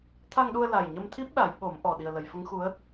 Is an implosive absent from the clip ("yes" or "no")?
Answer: no